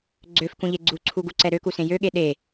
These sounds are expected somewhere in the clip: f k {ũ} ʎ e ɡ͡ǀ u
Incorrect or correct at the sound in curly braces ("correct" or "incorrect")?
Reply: correct